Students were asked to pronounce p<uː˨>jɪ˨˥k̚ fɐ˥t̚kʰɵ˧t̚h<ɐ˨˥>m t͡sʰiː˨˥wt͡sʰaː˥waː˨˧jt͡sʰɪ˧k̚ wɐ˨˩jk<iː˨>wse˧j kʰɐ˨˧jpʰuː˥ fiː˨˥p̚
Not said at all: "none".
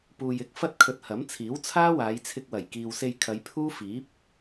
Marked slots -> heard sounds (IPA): uː˨, ɐ˨˥, iː˨

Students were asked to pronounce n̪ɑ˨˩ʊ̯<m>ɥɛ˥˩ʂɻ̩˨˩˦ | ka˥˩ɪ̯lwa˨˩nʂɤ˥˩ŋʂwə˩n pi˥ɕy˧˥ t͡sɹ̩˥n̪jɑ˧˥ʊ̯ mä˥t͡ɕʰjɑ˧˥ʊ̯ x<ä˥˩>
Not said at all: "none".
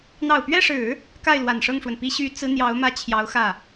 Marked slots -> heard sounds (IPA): p, ä˥˩

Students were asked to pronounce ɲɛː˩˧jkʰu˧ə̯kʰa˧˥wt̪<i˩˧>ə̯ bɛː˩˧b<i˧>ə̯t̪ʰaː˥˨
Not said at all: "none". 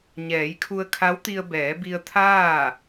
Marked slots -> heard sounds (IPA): i˧, i˧

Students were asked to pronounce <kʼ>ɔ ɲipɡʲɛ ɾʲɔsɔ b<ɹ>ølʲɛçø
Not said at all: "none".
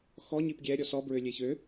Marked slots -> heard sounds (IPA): x, ɹ

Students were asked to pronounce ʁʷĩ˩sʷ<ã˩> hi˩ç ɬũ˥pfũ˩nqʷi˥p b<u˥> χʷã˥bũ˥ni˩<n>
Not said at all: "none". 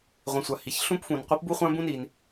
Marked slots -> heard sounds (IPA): a˩, u˥, n

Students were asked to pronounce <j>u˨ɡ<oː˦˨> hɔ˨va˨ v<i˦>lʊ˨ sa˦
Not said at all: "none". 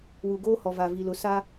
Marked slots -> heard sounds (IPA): w, oː˦, i˨

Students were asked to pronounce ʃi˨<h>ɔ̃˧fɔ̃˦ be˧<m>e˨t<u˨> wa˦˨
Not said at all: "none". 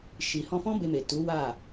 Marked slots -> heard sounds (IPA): h, m, u˨˦

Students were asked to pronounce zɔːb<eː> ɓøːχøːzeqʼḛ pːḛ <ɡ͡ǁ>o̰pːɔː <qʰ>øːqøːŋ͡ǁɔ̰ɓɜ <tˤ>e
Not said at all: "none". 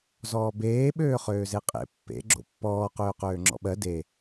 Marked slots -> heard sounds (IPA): eː, ɡ͡ǁ, q, d

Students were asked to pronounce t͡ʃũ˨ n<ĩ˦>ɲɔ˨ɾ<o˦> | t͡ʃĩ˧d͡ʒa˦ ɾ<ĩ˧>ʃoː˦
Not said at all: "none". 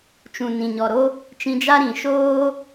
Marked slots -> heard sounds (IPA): ĩ˨, o˦, ĩ˨

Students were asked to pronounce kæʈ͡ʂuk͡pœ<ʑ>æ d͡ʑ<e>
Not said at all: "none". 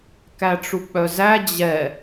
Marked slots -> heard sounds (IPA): z, ɛ

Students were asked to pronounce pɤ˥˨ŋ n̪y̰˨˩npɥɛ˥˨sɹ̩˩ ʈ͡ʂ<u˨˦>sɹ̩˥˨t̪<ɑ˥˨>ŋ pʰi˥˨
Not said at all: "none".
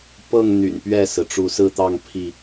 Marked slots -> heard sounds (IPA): u˨˦, ɑ˥˨

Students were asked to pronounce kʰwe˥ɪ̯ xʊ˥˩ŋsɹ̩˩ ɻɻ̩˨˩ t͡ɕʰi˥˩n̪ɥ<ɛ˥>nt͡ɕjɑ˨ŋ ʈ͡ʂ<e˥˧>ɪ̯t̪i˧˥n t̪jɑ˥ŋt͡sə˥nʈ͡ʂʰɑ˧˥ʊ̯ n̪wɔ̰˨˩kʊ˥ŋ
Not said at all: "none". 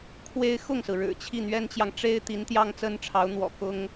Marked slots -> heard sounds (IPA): ɛ˥, e˥

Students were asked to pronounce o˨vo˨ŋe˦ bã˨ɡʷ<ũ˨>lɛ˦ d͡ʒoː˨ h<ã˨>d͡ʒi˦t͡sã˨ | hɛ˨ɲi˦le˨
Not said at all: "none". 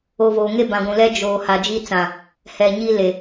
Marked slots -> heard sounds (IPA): ũ˨, a˨

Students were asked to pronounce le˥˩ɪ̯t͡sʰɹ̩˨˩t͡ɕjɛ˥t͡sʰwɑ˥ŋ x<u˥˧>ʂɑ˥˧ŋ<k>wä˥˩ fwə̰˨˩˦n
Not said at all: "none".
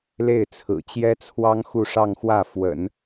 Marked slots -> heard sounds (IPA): u˥˧, x

